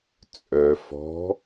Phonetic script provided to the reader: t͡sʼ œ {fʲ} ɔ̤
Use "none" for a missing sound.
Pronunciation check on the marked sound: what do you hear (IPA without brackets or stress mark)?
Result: f